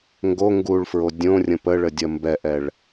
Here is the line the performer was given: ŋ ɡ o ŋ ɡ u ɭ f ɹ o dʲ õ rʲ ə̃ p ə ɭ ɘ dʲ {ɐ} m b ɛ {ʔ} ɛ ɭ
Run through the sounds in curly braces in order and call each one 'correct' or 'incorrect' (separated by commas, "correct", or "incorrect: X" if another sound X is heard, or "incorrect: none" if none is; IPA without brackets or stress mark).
correct, correct